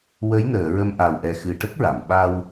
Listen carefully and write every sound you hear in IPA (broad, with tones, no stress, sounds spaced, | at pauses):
w ə˧˥ j n əː˨˩˨ ɹ ə˧ m ʔ a˨˩ w ʔ ɛ˨˩ x ɨ˨˩ ʈ ə˦˥ k̚ ɹ a˨˩˨ m ɓ a˧ w